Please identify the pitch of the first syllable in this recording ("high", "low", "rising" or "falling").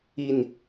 falling